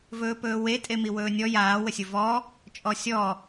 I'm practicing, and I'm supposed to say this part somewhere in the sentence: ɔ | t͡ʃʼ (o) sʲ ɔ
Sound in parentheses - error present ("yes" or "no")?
yes